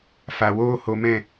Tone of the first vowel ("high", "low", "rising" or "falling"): low